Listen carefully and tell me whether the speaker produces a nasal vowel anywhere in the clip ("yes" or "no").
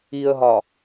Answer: no